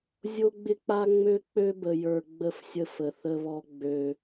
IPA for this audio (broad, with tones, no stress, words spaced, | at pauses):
zʲo˦ɡ͡bɪ˦k͡pa˦ ŋ͡mø˦k͡pø˦bə˨ jə˞˨ ɡ͡bə˦˨fsʲə˦ fə˨θə˦βɔ˦ ɡ͡bø˦